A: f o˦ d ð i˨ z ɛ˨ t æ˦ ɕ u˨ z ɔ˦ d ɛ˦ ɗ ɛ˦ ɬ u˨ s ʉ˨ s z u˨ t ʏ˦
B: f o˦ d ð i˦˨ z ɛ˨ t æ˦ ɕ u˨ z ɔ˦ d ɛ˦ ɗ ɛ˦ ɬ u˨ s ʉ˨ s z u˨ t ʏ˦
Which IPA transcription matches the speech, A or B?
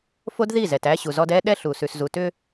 B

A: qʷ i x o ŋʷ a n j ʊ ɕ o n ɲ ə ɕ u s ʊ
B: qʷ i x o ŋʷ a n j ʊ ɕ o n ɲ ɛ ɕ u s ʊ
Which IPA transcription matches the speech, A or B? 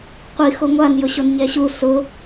B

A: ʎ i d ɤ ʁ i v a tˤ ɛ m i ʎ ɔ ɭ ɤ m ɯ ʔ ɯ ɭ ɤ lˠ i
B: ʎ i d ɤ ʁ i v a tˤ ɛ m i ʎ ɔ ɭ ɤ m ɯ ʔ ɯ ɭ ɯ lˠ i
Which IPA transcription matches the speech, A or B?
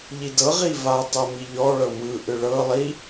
A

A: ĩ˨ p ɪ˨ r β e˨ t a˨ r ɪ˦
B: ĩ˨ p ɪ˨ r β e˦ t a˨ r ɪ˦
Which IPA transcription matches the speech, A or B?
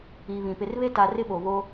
B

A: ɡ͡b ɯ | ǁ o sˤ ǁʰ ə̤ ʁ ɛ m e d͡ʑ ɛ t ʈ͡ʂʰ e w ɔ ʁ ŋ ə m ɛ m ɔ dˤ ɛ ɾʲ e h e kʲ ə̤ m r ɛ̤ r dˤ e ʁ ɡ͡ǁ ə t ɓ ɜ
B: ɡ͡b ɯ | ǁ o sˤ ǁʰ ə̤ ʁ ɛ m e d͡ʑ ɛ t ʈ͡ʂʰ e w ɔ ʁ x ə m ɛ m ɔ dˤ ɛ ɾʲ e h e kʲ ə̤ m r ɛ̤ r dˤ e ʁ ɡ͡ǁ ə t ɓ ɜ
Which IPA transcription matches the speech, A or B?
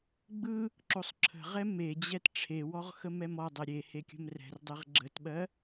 B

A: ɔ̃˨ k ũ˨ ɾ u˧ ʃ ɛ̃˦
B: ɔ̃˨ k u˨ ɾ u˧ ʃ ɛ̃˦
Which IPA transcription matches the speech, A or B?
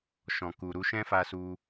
B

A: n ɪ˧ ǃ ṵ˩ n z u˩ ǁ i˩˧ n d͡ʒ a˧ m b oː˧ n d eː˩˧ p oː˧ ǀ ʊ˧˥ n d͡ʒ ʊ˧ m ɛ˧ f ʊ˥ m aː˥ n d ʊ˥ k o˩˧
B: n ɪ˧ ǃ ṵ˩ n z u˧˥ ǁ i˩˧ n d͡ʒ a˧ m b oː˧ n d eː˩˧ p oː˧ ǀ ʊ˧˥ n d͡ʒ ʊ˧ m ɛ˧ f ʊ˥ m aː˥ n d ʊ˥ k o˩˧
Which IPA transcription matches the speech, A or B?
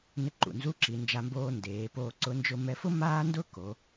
B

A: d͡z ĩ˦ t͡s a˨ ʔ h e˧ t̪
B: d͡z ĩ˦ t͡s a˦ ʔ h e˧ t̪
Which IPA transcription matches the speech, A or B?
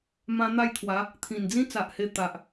A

